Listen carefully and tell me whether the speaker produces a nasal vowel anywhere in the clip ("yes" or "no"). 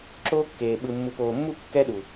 no